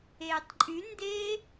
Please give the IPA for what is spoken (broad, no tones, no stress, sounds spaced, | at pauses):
eː tˤ ǃʼ y n d eː